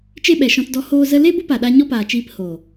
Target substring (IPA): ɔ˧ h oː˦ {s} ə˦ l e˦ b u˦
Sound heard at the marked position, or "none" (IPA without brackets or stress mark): z